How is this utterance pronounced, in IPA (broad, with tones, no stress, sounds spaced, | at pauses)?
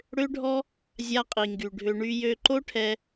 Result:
ɽ ø˦ ɖʱ ɔ˦ | zʲ a˦ qʼ i˨ ŋ ɡ y˨ ɖʱ ø˧ ɳ y˧ j ø˧ ǃ o˦ ʈʰ ɛ˧